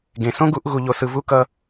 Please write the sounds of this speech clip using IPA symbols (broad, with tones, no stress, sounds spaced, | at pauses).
ɡ ẽ˨ s õ˦ ɡ u˦ ʔ ɣ u˦ ʎ o˦ s ɯ˦ v u˦ k ʌ˦